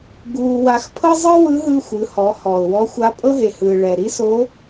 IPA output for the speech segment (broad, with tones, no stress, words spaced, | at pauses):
ɡuː˧wa˧˥x pʰɤ˥zˤɯ˥ wɯ˧˥ɦɯ˧ xʷɯ˩˧hɔ˩˧ hɔ˩ʊ̯wɔ˧˥ xʷa˧˥ pʼɤ˥ɦe˩hɯː˩ ɭɛ˩ɾi˥so˧˥